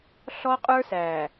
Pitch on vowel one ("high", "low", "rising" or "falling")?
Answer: high